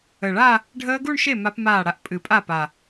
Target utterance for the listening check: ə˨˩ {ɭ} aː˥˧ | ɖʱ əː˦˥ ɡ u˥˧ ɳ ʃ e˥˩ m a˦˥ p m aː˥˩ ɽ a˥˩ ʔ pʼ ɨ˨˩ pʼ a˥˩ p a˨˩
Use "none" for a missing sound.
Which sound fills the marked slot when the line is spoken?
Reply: ɭ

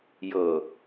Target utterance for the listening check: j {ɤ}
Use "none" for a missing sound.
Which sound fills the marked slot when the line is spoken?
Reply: ɤ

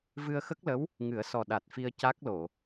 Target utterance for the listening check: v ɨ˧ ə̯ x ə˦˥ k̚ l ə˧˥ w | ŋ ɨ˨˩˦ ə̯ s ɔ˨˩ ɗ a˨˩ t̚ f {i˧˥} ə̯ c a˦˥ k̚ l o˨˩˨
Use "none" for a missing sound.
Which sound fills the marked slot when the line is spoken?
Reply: i˧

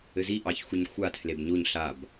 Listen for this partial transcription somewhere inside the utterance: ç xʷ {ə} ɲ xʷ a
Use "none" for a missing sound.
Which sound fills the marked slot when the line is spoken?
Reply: ə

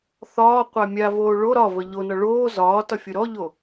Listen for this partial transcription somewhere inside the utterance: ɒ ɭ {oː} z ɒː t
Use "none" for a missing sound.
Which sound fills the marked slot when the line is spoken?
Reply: oː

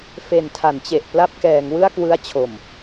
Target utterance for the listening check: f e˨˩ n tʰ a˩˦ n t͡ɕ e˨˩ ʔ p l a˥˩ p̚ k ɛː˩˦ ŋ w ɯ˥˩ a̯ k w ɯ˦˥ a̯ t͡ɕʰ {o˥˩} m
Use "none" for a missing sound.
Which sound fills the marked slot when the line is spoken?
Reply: o˨˩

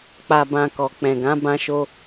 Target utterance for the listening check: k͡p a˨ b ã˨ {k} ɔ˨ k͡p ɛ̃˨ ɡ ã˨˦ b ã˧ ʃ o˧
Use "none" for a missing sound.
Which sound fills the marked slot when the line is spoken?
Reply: k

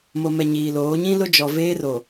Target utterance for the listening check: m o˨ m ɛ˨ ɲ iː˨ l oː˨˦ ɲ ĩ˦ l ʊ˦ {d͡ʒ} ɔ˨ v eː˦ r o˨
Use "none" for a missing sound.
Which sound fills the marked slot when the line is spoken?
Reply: d͡ʒ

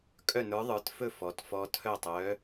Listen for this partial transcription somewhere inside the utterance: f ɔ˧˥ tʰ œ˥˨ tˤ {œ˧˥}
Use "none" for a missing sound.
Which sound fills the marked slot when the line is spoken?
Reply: œ˧˥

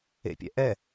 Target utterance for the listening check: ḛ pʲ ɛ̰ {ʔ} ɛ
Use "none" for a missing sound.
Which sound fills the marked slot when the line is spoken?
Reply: ʔ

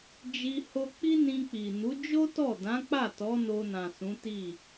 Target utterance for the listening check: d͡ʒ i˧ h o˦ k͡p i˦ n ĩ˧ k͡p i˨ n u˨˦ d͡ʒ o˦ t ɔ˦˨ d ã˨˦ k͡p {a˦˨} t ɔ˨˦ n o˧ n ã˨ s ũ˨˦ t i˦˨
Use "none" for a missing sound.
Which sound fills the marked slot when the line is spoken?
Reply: a˦˨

